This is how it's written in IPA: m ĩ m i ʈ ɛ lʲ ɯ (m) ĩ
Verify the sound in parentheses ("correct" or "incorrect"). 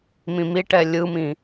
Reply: correct